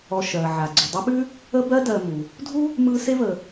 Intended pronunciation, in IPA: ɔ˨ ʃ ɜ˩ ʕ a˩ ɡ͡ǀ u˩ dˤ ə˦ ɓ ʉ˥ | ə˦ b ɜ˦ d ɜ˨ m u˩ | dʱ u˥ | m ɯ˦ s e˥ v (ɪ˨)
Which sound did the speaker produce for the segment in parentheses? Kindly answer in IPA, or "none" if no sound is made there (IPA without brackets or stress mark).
ə˨